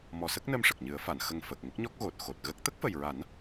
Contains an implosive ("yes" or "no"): no